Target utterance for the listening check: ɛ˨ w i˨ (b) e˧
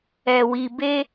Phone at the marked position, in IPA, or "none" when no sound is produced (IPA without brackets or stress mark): b